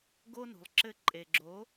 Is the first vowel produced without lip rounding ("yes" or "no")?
no